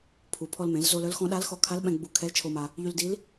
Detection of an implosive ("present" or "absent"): present